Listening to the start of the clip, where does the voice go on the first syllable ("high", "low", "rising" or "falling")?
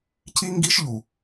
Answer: high